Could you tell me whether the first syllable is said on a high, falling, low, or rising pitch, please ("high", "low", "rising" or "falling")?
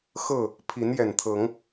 falling